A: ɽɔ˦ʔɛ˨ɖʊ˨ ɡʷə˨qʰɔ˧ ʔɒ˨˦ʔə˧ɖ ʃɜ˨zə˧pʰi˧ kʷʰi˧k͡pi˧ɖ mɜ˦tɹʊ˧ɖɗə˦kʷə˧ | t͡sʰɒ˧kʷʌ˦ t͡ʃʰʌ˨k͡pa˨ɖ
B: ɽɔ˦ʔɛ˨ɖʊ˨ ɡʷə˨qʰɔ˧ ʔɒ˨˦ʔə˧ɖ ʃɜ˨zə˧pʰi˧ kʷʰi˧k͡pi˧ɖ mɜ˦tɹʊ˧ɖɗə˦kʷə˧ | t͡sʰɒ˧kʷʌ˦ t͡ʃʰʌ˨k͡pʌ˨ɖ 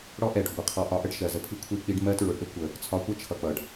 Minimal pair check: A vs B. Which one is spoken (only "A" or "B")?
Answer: B